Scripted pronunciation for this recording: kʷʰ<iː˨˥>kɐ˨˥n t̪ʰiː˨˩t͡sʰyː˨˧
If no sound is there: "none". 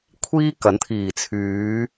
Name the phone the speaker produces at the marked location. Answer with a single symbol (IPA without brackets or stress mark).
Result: iː˥